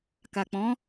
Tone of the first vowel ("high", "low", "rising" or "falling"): low